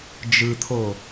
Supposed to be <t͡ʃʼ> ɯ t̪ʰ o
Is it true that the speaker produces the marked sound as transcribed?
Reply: no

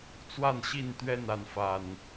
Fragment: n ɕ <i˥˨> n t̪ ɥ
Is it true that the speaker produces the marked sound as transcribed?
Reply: yes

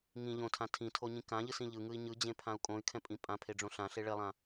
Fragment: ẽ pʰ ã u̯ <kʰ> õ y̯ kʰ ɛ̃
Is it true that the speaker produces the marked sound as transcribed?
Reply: no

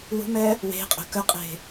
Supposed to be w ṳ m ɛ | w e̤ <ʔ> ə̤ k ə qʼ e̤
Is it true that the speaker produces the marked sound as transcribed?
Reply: no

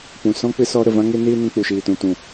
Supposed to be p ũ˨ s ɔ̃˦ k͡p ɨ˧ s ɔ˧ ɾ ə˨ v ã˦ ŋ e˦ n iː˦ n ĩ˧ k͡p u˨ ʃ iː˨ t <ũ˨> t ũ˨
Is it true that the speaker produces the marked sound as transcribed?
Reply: yes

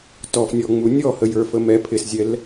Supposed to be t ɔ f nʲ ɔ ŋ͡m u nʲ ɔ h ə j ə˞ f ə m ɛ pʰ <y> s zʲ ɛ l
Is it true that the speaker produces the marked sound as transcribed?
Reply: no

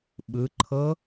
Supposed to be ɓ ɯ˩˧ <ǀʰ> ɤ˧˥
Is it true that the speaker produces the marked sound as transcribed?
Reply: no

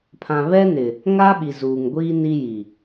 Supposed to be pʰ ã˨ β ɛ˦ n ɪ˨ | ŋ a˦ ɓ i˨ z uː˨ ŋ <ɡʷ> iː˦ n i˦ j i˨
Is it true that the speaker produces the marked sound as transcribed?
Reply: yes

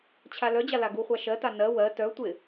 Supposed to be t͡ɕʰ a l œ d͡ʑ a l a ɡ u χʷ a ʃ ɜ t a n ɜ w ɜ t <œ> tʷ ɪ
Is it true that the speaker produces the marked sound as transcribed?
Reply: yes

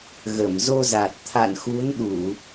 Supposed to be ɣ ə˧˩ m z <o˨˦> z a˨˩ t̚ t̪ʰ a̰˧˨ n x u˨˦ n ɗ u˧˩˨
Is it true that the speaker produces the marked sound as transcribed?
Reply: no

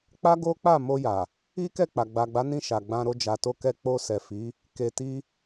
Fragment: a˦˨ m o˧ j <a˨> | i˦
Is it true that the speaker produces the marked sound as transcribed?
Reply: yes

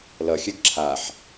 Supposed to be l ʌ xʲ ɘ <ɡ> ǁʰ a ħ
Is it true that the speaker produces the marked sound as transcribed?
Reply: yes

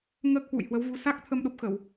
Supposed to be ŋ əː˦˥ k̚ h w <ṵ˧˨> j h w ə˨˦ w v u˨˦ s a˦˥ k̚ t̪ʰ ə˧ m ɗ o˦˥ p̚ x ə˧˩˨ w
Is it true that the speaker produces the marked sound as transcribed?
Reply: yes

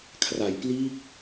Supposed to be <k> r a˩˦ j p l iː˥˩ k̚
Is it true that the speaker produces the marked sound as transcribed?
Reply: no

